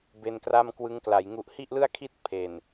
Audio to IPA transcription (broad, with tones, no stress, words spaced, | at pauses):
be˧nkra˥˩m kwɯ˦˥ŋkla˩˦jŋu˦˥ʔ hi˥˩ʔlɯ˥˩a̯kʰi˥˩t̚ pʰe˨˩n